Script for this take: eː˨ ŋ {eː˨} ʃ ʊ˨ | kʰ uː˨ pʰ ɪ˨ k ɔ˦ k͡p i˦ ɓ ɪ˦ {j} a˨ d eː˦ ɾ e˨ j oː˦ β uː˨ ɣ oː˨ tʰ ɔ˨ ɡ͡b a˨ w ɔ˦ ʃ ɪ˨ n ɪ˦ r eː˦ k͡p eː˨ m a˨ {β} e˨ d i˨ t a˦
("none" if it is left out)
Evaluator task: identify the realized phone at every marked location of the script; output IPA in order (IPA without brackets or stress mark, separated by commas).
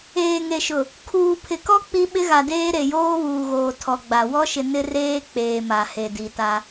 e˨, ɣ, h